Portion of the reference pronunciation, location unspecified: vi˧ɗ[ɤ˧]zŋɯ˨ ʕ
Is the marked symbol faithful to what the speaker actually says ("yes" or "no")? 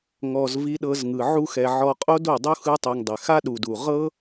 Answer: yes